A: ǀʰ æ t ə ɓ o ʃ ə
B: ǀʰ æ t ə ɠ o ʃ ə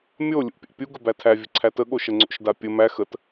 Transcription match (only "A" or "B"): B